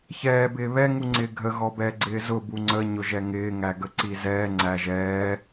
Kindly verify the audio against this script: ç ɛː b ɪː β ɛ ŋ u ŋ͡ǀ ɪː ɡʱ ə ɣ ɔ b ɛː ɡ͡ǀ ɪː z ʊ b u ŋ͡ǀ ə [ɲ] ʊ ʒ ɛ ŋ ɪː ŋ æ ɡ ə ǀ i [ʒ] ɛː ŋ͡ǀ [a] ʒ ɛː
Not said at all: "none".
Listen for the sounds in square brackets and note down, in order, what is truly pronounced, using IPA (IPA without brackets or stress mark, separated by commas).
ɲ, z, æ